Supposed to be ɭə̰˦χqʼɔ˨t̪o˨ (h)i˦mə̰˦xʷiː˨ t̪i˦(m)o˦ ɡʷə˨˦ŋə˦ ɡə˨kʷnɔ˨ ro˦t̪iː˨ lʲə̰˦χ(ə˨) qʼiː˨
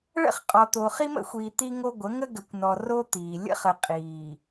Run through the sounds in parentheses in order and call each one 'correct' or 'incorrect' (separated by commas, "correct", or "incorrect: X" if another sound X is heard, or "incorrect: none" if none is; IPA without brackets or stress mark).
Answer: incorrect: χ, incorrect: ŋ, correct